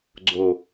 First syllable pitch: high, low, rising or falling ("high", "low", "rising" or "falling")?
low